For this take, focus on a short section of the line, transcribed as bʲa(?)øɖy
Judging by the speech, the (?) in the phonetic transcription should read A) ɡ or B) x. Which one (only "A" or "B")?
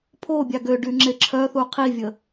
A